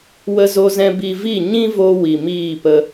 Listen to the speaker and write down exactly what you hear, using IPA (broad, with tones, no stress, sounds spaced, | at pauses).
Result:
w ə˧ z o˧ z ɛ̃˧ b i˧ v i˦˨ ɲ ĩ˦ v o˧ w i˨ m iː˦˨ p ə˧